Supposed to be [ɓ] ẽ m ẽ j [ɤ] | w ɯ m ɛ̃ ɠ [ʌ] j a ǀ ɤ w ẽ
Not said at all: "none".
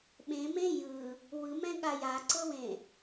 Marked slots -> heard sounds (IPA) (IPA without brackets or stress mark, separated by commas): ɓ, ɯ, a